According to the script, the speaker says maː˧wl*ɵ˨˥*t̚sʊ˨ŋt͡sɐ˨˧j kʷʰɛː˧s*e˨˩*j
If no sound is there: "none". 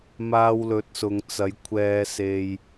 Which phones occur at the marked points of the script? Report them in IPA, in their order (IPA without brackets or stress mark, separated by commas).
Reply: ɵ˨˥, e˧